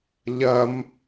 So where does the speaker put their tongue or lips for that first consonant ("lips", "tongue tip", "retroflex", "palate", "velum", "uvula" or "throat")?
palate